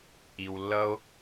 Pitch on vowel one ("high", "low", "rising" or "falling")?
low